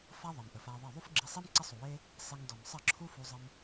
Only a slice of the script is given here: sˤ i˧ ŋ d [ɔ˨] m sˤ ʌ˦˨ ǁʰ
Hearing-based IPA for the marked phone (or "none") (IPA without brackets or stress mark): ɔ˨